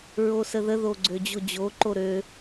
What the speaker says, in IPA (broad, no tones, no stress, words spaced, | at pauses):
ɹosəðə ðoɡ͡ǀød͡ʑod͡ʑo ǃoɾø